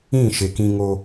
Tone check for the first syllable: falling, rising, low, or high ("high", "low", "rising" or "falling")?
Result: falling